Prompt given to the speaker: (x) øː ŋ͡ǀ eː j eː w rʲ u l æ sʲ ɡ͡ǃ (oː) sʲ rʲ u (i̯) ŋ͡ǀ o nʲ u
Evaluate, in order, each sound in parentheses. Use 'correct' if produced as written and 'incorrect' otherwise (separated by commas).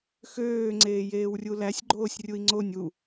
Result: correct, correct, correct